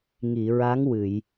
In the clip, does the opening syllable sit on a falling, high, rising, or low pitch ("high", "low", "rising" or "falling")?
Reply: low